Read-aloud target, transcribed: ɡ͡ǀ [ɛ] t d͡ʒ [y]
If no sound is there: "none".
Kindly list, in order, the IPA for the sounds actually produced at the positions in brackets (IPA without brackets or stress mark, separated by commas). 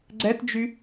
ɛ, y